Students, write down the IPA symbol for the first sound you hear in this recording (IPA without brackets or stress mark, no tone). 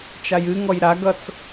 t͡ʃ